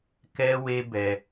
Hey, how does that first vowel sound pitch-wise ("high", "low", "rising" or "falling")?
high